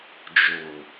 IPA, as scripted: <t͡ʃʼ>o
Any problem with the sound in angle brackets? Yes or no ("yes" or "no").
yes